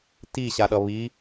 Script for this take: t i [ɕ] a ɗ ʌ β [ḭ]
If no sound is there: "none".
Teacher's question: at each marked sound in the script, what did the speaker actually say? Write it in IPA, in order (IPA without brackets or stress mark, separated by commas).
ɕ, i